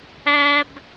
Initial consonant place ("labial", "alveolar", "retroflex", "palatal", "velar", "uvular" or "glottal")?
labial